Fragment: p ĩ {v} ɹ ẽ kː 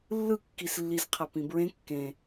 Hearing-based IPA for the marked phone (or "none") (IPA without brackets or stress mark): b